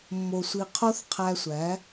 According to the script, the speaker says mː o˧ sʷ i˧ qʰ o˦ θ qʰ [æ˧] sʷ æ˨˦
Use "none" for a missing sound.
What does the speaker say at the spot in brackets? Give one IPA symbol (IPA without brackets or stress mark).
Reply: æ˧